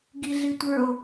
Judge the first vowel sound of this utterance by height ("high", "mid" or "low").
high